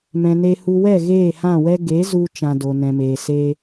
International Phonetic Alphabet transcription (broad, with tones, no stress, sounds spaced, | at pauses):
m ɛ̃˨ n e˧ h u˧ w ɛ˦˨ ɣ eː˦˨ h ã˦˨ w ɛ˦ ɡ e˨˦ z u˧ t͡ʃ ã˧ d o˨ n ɛ̃˨ m eː˨ s eː˦